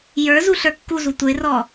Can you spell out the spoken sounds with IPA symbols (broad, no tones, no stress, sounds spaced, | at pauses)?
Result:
j ə˞ z u ɬ ə˞ kː u z u tʷ ə ɪ̯ r ɔ